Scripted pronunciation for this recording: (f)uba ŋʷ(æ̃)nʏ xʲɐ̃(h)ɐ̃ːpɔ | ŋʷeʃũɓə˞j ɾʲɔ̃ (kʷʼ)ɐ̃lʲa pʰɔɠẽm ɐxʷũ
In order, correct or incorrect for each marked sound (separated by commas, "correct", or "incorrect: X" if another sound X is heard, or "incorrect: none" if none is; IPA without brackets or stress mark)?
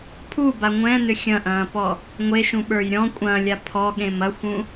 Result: incorrect: pʰ, incorrect: ɛ̃, incorrect: ʔ, correct